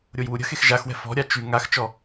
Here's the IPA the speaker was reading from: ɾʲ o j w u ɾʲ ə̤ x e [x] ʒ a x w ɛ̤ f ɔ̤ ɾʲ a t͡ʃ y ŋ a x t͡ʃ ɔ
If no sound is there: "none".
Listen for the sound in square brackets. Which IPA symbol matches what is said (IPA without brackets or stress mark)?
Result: x